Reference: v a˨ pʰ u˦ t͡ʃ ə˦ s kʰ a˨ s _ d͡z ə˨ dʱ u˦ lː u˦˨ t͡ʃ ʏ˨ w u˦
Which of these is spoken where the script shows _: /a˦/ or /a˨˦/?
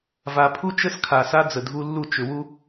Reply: a˦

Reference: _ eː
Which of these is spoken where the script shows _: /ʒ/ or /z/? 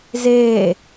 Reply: z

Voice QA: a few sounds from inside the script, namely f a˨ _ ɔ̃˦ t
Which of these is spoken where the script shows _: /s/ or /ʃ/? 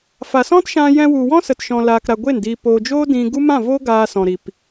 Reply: s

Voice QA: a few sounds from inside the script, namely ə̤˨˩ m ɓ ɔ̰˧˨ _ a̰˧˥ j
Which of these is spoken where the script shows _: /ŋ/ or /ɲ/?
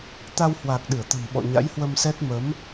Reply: ɲ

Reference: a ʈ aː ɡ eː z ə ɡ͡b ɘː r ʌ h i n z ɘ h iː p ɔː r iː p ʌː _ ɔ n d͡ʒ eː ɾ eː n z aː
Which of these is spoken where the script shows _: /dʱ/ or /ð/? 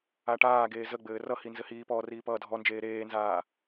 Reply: dʱ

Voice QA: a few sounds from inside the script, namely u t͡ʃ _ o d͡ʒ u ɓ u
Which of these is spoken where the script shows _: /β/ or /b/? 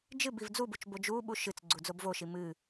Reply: b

